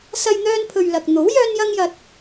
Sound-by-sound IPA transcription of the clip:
sɐ˧j n̪œː˧npʰɵ˨ɥ lɐ˨k̚ n̪o˨˥w jœː˥njɐ˥ŋjɐ˧t̚

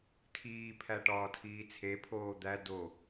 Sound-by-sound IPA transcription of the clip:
tʰiːpʰæ ʈɒːtʰiːt͡sʰepʰoː d̪æ do

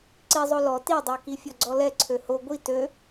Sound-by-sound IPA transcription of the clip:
ǀizˤo lɔ tidˤø kifʲɔɡ͡ǀɔlɛ ǀʰøho ɡʷi tø

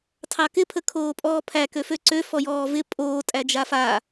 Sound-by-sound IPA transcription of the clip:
tʰɑkɪ pʰəkʰoːpʼɔːpʰæ køføǀø fɔjɔːvɪ pʼoː tʼæd͡ʒafa

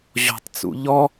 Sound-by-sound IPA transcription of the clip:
ʑɔ̤tˤt͡sṵ ʎɔ

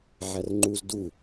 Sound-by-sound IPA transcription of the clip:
ʕærŋ͡ǃuz du

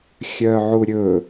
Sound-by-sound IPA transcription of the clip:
xʲœʕuɾʲɵ

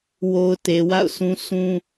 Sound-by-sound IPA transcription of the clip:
wo˨ʊ̯ te˨wa̰˦˨ʊ̯sʰũ˦ sũ˦

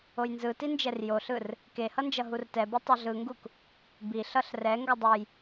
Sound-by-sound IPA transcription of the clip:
ojnzɯtind͡ʒɛr joɬɯr | kehʌnd͡ʒʌ ɦurtɛbo tˤʌɮɯŋɡuk | biɬʌɬ rɛ ŋɡʌdˤɯj

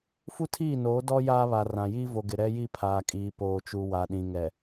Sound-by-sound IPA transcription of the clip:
fu˦tʰiː˦˨noː˨˦ dɔ˦ jaː˦βa˨rã˨ jiː˦vo˨ɡɪ˨ ɾɛ˦ji˦ pʰaː˨kʼiː˨poː˨t͡ʃu˨ wa˨ɗĩ˨ŋɛ˨

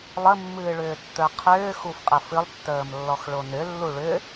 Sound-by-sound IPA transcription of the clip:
lˠəmːɨːɭʏːtːə˞ qʰʏː xufqʼəfɨlˠtːəːm lːɔxɭonʏlːu ɭʏ

